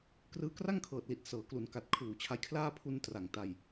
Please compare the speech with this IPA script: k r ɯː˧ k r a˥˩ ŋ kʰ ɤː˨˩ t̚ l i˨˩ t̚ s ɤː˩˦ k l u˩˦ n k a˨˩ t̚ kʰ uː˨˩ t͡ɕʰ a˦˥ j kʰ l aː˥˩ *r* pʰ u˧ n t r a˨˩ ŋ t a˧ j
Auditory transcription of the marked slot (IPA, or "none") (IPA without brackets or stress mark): none